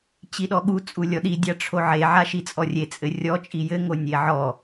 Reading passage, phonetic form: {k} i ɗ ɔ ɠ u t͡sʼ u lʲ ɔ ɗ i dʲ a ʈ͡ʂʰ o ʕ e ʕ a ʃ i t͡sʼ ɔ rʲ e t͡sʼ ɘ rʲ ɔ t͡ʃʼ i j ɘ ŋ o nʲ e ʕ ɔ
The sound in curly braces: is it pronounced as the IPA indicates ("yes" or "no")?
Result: no